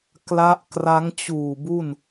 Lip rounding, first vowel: unrounded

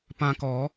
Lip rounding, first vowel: unrounded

